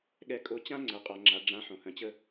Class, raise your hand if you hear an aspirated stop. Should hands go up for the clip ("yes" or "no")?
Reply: no